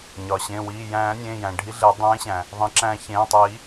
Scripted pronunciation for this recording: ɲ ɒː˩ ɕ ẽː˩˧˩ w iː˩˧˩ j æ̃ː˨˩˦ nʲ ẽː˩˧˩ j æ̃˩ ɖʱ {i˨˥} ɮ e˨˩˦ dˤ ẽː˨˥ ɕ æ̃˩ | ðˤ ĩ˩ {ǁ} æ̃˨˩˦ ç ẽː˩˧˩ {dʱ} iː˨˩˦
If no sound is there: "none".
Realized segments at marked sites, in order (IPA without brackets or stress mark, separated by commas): i˨˥, ǁ, tˤ